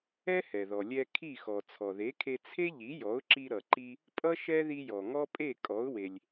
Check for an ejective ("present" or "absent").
present